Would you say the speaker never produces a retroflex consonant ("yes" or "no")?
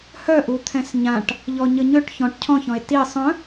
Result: no